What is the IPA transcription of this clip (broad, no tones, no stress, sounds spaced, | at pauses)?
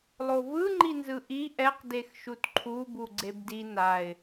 lˠ o v ɯ ŋ͡ǃ i n z ɯ ʔ i ʔ ɛ q d e x ʃ u t ǃʰ u b u ɡ͡ǀ e b d i n a ɪ̯